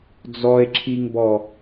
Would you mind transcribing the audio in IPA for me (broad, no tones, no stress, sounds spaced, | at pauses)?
d͡z ɔ e̯ ǁʰ i ŋ b ɔ